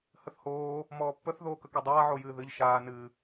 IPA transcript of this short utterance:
həθhoː | mɔːpːəθ ðoːkəkødˤaː ʕojɨːðɨʎ ʃaː nɨ

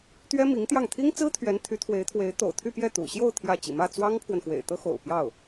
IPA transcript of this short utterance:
t̪ɥɛ˥ mi˧˥ŋt̪jɑ˥˩ŋ t̪ʰi˥ŋt͡sɹ̩˥ t̪ʰɥɛ˧˥nt̪ʰy˧˥t̪ʰwe˧˥ɪ̯t̪ʰwe˧˥ɪ̯ t̪o̰˨˩ʊ̯t̪ʰy˥˧pjɛ˥˩ t̪ṵ˨˩ɕjo˥˧ʊ̯ t̪ʰjä˥˩ t͡ɕḭ˨˩mä˥˩ t͡swɑ˥ŋpʰwə˨nxwḛ˨˩ɪ̯ t̪ɤ˥xo̰˨˩ʊ̯ pjɑ˥˩ʊ̯

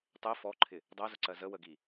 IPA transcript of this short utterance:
tˤɛ fɔǃʰɪ | dˤɜzʊǀɜ zəwəɡi

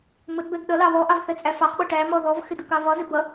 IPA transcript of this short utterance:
mʊdbɛɡ ɗʌ lɑβɔʔɑv θɛt͡sʼæfɑχɓɔ ʈæmɔ ðɔvxɪ dʊkɑvɒzɪ bʌ

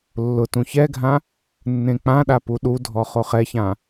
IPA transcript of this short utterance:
lːʊtũ çɛɡʱã | nːẽk͡pãɗa puɗudʱɔ χoχɛçã

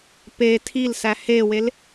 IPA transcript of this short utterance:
pe tʰilsæ hewel

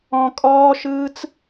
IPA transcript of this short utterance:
ɔ̃kʼɔːʃɯːt͡s

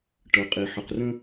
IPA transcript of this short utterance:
ʈɤ˩qʼi˩ ħə˩qrə̃˦

